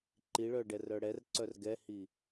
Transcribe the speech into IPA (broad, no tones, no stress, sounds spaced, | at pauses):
ǃ i ɭ œ ɖ ɛ r œ ɽ ɛ r ǀ œ r ɡ ɛ h i